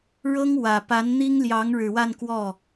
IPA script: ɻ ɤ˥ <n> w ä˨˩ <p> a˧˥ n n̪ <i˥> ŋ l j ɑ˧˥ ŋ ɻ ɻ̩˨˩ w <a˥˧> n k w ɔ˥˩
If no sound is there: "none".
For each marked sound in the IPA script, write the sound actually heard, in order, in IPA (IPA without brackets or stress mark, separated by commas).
ŋ, p, i˥, a˥˧